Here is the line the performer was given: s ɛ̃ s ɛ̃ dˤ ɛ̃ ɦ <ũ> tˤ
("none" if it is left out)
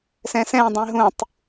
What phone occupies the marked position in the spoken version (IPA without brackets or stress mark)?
ũ